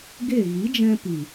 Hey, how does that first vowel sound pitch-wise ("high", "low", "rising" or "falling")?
falling